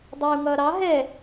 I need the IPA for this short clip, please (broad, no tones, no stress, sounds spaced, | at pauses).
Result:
dˤ ɛ u̯ ŋ ʌː ɾ ɑ ɦ ɛ